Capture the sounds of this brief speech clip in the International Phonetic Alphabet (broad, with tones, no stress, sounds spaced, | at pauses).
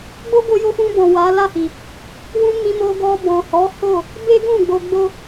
ɡ͡b o˦ ɡ o˧ j o˧ f ũ˧ b ɔ̃˨ w a˨˦ l a˦˨ h i˨ | w ũ˧ m ĩ˧ m o˧ ɡ ɔ˧ b ɔ̃˨ h ɔ˨˦ h o˦˨ | b e˦ ɡ ũ˦˨ ɡ͡b o˧ ɡ͡b o˦